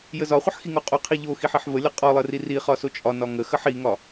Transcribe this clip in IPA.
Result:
j ə z ɒ χʷ ə ħ x i ŋ o qʼ o qʰ i ʎ o x i ħ i ħ v ə lʲ ɒ qʼ ɒ lˠ ə r i r i χ ɒ s o t͡ʃʼ ɒ n ɒ ŋ ə x ə ħ i ŋ ɒ

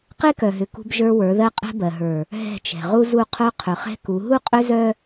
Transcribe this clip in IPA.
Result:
q e˦ k œ˨ ɦ ʏ˨ k ṳ˦ b ʒ ə˞˦ w ə˞˨˦ ð ɜ˦ qʼ ɛ̤˦ b ɜ˨ ɦ ə˞˨ | ɦ ɛ̤˦˨ t͡ʃ ɛ̤˨ ʁ u˦ z u˦ qʰ œ˦ qʰ ʏ˨ χ ɛ̤˦ k u˨˦ ɦ u˦ qʼ ʏ˦ z œ˦

